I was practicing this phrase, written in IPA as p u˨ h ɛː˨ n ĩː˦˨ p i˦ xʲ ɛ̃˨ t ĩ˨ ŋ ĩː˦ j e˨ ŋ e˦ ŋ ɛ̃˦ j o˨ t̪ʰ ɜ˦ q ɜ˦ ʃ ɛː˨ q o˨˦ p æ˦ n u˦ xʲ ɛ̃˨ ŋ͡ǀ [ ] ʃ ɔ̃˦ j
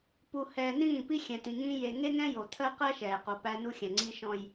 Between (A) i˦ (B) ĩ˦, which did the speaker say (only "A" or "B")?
A